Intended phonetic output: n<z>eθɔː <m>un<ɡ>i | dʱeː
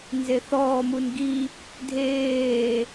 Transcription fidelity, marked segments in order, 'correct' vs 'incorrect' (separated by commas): correct, correct, correct